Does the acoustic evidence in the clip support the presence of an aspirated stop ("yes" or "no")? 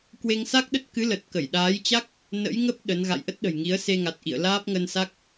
no